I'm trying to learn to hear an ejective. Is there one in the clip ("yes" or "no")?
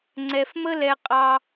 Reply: yes